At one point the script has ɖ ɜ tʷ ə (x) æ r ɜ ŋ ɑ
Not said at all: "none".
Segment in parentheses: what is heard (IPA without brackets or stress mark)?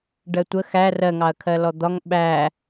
x